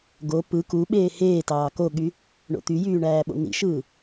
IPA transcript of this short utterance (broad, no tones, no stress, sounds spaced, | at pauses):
ɡ o p ɯ k u ɓ eː h eː t ɑː k o ɠ y | ɳ o̰ t̪ y j yː ɳ æː ɓ o̰ n̪ ḭ ʃ ɯː